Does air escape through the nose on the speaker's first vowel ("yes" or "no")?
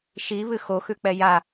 no